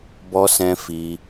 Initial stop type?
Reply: plain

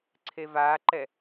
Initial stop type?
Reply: click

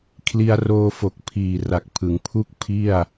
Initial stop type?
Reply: aspirated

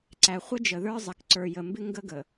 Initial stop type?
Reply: click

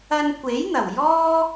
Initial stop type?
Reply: plain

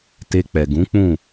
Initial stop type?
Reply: plain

